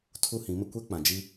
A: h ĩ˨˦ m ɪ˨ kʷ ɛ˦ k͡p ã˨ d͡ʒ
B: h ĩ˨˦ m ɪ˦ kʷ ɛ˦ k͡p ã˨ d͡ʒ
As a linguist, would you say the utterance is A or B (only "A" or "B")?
B